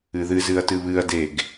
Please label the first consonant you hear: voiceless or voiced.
voiced